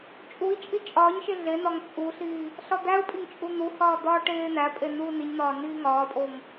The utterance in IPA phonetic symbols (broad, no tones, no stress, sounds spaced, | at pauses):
t͡ʃʼ u i̯ t͡ʃʼ i t͡ʃʼ ɒː ɲ ʃ e ɮ e n ɒ ŋ t͡sʼ u ɬ iː | ɬ ɒ d̪ æ u̯ pʼ i ŋ t͡ʃʼ u n̪ u h ɒː d̪ ɒː ʈ eː n̪ æ pʼ e n uː n i ɲ n̪ ɒː n iː ŋ ɒː pʼ o ŋ